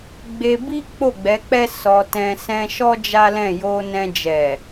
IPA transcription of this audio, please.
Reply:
ɡ͡b e˧ b i˦ k͡p o˦˨ ɡ͡b ɛ˨˦ k͡p ɛ˦ s ɔ˧ t ɛ̃˧ s ɛ̃˧ ʃ ɔ˦ d͡ʒ a˦ l ɛ̃˦˨ j o˧ n ɛ̃˧ d͡ʒ ɛ˨

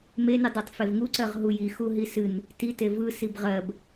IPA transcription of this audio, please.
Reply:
m e n ɨ dˤ e tˤ f e v ŋ u ǀ ɜ ʁ ɦ u j i x u ɦ i s ɨ n | t i t e v ɯ s i b ʁ ɜ b

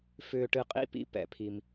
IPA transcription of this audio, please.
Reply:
f ʏː˨ ʈ ɨ˨ qʼ ḭ˥˩ p ḭ˦ p ɛ̰˨ pʰ i˨ m

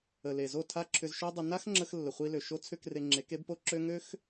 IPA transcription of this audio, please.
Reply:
ə˨ l e˨ z o˦˨ tʰ a˦ ǁʰ ʏ˧ z ʃ ø˦ dˤ ə˧ n a˦ x ŋ͡ǁ ə˧ x lː ə˨ χʷ i˧ l ø˨ ʃ o˦ t͡sʰ ʏ˦ k r e˧ ŋ͡ǁ e˨˦ k e˦ b p o˦ ǁ ø˦ ŋ ø˦ x

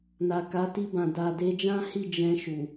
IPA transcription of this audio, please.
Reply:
n a˨ k a˨˦ t i˧ b ã˨ d a˨ d e˧ d͡ʒ ã˦ h i˦˨ d͡ʒ ɛ̃˧ ʃ u˨

